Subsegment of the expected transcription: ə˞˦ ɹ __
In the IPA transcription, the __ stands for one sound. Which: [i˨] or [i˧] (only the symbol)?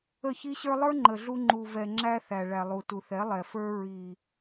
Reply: i˨